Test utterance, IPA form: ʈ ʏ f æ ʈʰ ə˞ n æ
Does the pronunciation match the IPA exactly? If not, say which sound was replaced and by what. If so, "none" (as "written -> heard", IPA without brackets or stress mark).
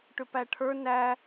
f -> p